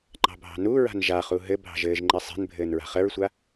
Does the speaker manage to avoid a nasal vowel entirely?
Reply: yes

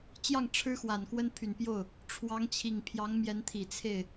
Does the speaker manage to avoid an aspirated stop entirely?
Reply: no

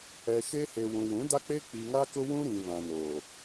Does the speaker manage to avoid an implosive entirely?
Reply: yes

